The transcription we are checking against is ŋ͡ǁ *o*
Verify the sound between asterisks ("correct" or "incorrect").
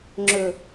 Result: incorrect